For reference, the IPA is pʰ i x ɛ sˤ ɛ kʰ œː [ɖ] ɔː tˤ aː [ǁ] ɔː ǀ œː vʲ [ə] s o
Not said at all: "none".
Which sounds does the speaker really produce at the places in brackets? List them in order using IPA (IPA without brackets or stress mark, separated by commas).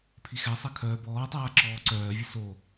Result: b, ǁ, ə